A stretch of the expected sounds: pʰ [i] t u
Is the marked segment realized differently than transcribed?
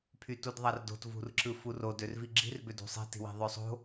yes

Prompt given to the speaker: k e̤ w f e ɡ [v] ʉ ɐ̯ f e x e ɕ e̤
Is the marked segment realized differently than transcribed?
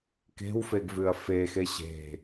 no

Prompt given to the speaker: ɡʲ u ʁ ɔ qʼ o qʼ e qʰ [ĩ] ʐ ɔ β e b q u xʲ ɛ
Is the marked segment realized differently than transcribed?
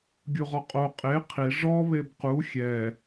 yes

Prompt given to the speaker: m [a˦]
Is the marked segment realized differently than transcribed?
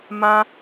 yes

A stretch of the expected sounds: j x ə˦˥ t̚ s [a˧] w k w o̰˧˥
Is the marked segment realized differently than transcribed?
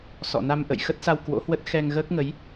no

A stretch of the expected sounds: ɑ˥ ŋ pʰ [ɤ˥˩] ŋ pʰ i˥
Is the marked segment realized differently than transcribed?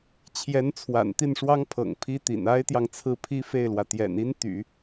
yes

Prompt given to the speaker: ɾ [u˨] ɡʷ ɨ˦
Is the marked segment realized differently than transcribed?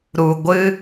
no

